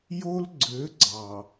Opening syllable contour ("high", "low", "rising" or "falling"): high